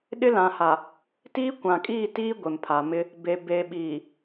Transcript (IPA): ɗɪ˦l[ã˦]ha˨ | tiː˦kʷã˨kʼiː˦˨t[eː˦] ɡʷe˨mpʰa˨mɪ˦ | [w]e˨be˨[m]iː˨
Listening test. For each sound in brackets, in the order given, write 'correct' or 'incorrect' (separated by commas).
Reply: incorrect, incorrect, incorrect, incorrect